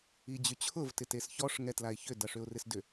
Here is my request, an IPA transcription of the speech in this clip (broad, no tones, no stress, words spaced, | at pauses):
id͡ʑyt͡ɕʰʊv tɪtesçɔʂ ŋɛtlaɪ̯çʏ dɐʂʏʊ̯rɪsdʏ